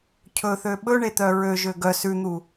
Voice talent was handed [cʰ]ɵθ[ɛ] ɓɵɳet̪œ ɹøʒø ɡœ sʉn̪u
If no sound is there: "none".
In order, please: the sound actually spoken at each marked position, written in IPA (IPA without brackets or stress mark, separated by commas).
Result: cʰ, ø